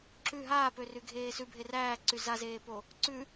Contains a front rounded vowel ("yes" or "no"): yes